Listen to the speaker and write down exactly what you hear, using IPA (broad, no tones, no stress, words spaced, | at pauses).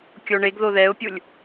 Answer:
kʲoɳeɡðo ðɛʊ̯pʲulʲ